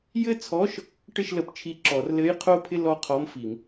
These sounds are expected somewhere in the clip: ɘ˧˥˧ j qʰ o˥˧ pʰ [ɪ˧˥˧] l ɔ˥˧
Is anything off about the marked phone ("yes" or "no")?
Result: yes